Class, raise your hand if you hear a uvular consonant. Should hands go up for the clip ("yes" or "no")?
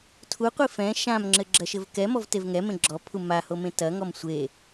yes